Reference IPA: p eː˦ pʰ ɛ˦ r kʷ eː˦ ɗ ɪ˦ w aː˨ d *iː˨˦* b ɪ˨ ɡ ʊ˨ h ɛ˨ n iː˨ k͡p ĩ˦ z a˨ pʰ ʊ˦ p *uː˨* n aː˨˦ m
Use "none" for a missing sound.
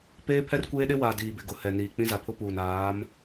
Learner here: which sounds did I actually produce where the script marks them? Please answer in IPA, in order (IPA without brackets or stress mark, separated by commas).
iː˨, uː˨